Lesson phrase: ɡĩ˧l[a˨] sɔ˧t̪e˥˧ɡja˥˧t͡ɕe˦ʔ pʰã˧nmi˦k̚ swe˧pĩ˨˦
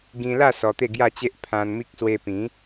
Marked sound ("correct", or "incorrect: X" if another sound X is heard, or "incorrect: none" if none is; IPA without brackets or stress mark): incorrect: a˥˧